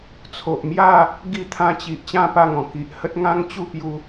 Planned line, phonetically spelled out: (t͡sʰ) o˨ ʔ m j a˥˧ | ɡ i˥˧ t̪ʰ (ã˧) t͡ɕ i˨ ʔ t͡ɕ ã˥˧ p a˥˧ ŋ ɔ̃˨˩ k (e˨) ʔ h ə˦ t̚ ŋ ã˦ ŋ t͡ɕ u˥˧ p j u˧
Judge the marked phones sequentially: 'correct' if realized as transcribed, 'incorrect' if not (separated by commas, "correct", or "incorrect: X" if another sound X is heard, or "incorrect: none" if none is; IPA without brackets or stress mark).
correct, correct, incorrect: i˨